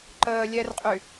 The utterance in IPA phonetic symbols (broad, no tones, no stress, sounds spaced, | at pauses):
ǃ əː lʲ ɛ r qʼ y